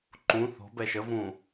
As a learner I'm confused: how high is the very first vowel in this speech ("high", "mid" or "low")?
high